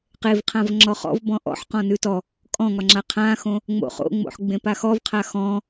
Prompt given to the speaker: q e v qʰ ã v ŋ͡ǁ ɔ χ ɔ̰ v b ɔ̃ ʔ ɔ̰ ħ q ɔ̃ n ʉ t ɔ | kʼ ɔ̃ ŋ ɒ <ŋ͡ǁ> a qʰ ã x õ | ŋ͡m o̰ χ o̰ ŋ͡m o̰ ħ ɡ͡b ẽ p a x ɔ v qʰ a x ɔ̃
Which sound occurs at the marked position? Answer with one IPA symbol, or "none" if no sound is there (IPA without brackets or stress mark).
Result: ŋ͡ǁ